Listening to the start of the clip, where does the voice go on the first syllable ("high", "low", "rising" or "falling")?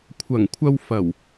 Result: low